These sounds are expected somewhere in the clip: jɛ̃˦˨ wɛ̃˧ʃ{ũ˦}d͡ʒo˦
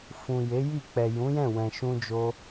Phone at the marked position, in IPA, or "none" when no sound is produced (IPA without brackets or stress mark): ũ˦